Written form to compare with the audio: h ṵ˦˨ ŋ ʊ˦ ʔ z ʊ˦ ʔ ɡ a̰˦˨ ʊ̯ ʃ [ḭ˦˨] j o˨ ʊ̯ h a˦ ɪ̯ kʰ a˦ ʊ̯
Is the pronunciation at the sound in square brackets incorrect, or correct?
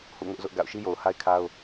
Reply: incorrect